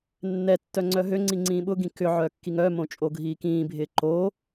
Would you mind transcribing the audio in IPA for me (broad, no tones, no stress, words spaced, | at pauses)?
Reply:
nːɛ tːœŋ͡ǀœɦøŋ͡ǀi ŋ͡ǀĩːɓʊɡĩ kʏ ʕœkːiŋœmõ t͡ʃʼoɡʱiːkĩːbʱɪː ǃo